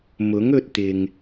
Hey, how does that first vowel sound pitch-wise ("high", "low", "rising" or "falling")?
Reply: rising